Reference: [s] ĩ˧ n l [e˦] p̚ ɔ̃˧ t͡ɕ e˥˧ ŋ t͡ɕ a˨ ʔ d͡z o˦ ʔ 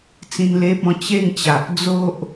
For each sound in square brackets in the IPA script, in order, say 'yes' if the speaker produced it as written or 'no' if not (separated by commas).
no, yes